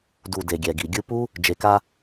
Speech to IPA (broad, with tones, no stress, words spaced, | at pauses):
du˨ de˨ɡʲɛ˨ɡi˨ ɡʲɯ˧pu˦ | d͡ʒe˨ka˧